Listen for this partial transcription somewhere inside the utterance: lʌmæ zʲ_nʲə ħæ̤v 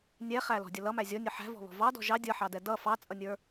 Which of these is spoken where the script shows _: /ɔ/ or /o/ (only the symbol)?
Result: ɔ